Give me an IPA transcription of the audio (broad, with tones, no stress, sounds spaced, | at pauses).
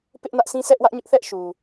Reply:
p ɪ˦ ʔ n ä˦ ʔ sʰ ĩ˦ sʰ ɛ˦ ʔ w ä˦ ʔ ɲ ʊ˦ ʔ θ ɛ˦ ʔ ʃ u˨